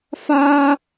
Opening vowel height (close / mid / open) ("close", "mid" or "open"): open